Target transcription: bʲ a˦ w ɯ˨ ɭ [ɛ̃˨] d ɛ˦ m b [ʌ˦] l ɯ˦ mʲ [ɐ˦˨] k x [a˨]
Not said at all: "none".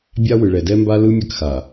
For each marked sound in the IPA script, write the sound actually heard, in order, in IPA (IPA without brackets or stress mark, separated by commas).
ɛ˨, a˦, ɐ˦˨, a˨